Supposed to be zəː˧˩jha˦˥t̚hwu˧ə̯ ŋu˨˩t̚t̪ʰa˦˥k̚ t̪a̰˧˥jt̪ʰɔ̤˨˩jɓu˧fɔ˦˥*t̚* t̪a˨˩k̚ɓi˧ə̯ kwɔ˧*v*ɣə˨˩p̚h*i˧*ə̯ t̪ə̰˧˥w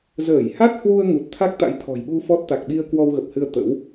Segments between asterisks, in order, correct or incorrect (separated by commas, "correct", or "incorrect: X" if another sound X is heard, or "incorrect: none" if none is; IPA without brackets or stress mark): correct, incorrect: w, incorrect: ɨ˧